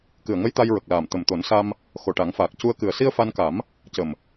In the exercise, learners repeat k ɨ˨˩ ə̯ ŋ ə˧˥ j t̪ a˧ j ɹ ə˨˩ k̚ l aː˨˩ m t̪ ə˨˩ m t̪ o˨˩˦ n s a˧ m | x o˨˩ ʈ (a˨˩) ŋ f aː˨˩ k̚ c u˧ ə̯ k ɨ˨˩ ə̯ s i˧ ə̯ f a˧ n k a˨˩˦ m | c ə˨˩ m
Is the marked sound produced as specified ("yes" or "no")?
no